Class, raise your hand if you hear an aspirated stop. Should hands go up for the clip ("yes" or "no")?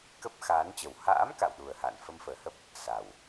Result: no